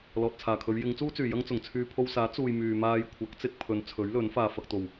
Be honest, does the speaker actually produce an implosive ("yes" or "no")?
no